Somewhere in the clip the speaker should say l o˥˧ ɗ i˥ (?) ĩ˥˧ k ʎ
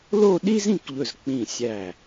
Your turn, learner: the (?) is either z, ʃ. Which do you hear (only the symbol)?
z